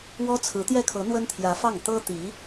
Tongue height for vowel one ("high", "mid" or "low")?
mid